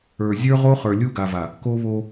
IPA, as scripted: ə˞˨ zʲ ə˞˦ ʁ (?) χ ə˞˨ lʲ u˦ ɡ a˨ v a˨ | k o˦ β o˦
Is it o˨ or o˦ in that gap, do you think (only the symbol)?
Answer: o˦